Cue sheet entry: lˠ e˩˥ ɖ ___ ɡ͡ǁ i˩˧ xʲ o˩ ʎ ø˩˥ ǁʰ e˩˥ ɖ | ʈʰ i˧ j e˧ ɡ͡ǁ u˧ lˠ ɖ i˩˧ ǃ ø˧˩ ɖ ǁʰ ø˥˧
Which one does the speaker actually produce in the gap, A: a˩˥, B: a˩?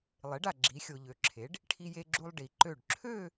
B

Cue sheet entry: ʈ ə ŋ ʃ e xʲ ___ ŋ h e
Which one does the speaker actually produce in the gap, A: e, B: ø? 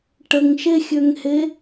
B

